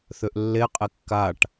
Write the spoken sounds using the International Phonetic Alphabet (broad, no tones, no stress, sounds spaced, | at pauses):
θ ø ʔ lː e qʼ e kː a ʈ